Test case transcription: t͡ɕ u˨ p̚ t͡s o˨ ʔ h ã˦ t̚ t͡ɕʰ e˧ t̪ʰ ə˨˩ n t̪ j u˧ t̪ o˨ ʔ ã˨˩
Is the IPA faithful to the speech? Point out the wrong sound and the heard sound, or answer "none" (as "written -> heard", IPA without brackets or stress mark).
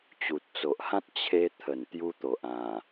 p̚ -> t̚